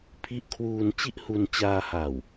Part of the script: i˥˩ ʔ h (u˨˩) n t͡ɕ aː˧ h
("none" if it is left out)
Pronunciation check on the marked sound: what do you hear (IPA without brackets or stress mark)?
u˧